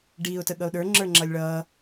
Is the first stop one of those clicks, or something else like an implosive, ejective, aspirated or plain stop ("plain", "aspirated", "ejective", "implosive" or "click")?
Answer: plain